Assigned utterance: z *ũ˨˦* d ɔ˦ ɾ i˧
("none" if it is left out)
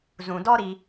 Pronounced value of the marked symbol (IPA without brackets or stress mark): ũ˨